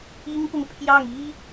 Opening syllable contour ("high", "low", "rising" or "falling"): high